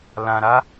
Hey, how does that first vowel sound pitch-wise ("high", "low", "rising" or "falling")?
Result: low